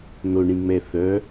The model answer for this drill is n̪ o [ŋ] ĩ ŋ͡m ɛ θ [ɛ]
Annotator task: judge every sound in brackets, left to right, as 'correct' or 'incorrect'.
incorrect, incorrect

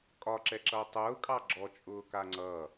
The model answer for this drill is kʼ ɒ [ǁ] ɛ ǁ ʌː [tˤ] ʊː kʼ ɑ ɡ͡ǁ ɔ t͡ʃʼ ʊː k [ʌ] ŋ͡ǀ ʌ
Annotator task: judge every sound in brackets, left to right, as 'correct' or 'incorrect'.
correct, correct, incorrect

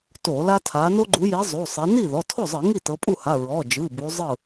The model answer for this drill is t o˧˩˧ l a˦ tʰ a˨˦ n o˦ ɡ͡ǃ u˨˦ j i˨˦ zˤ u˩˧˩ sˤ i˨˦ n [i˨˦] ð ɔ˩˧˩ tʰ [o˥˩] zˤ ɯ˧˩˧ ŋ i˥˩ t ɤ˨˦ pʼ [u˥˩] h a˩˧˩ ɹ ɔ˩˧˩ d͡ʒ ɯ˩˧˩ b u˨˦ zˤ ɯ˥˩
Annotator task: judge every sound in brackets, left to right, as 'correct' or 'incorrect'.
incorrect, correct, correct

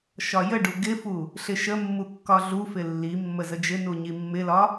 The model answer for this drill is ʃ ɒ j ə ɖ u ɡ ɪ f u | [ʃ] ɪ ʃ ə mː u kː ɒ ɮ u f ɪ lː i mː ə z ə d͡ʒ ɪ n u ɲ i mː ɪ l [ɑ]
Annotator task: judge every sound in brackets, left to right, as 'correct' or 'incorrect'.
incorrect, incorrect

